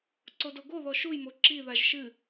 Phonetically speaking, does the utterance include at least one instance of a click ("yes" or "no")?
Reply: yes